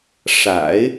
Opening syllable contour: low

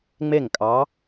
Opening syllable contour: falling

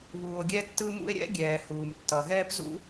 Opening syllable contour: low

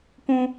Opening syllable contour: high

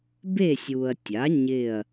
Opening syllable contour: falling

